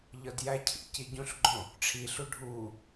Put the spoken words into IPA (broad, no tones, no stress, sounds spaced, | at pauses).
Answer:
ʎ ɒ d j æ cʰ ḭ c i ɟ ũ ɬ ɡ͡ǃ õ | ʈ͡ʂʰ i ɬ u ɖʱ u